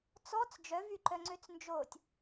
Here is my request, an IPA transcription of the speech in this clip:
t͡s ɔ t͡s d͡ʒ œ v y ǃ œ ŋ͡ǀ ø t͡s n d͡ʒ o tʲ

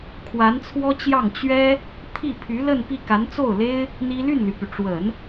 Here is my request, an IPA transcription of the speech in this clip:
kʰ w a˧˥ n t͡sʰ w ɔ˥ t͡ɕ j ɑ˥˩ ŋ t͡ɕ ɥ ɛ˥ | t̪ʰ i˥˩ pʰ y˧˥ l ə˥˧ n p i˥˩ k a˧˥ n t͡s o˥˩ ʊ̯ l e˥ ɪ̯ | n̪ i˥ l y˥˩ n l y˩ p y˩ ʈ͡ʂ w ə˨˩˦ n

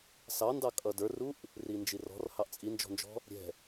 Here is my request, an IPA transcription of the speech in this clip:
s ɑ n d ɑ kʼ ʌ d ə˞ r u ʔ | r i n d͡ʒ i r ɔ̤ r h ɑ ʔ t͡sʼ i n d͡ʒ ɔ̤ n d͡ʒ ɔ̤ | ɾʲ ɛ̤

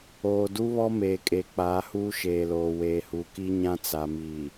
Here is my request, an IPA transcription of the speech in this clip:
oː˨ d u˦ β ɔ˦ m eː˨ kʼ e˨ k͡p aː˨˦ h uː˦ ʃ eː˨ l oː˨ w eː˨ h u˨ k i˦ ɲ ã˦ t͡s a˨ m iː˨

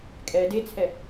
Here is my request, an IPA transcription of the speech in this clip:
kʼ ɛ d e t͡sʰ ɛ

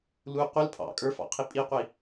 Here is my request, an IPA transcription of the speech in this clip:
l u qʷ ə l pʰ ɑ̰ kʼ ə˞ f ɑ̰ qʰ i pʼ i qʷ i

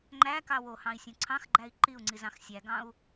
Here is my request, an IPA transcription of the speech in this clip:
ŋ͡ǃ æ k ɑ w o h ɑ̃ i̯ sʲ õ ǀʰ ɑ̃ x ɡ͡ǃ æ i̯ ǃ i u̯ ŋ͡ǀ i z ɑ̃ x sʲ æ ɡ ɑ̃ u̯

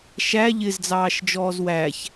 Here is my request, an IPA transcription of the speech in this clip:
ʃ æ ʎ ɪ z d͡z ɑː ʃ d͡ʒ ɔː z w æ ç

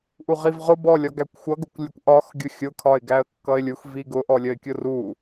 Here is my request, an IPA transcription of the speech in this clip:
ʔ u ʁ i v ʁ ʊ b ɔ lʲ ɒ ɡ æ kʷ xʷ ʌ ɡ ʊ kʷ lʲ ə kʷ ʔ ɒ x ɡʲ ʊ xʲ ʊ kʰ ɒ ɪ̯ ɡ æ ə̯ kː ʌ ɪ̯ lʲ u x v i ɡ ʊ ʔ ɔ lʲ ə ɪ̯ kʲ ʊ r u

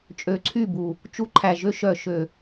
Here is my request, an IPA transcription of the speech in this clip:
t͡ʃʼ ø˨˩ ǀʰ y˥˩ b u˨˩ | t͡ʃ u˧ ǃʰ æ˨˩ ʒ ø˧ ʃ œ˨˩ ʃ ø˨˩

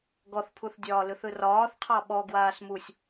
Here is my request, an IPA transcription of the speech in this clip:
ɡ ɔ θ pʰ u θ dʲ ɒː l ɯ θ ɯ r ɒː θ qʰ ɑ ɓ ɔ ɡ w aː s m u sʲ

